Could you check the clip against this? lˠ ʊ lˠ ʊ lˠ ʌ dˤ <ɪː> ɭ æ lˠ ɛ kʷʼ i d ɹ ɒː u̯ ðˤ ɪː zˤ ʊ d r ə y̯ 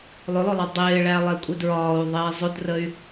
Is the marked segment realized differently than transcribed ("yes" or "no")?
no